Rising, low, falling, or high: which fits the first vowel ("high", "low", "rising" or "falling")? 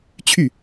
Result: falling